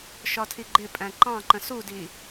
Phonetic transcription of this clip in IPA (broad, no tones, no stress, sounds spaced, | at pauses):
ʃ ɒ tʰ i ɡ͡ǃ ɪ pʼ æ̃ ǃ ɑ̃ ǃ ə̃ s u d i